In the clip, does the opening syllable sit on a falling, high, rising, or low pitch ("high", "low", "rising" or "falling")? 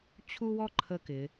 high